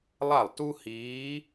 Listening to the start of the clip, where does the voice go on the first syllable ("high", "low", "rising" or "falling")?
falling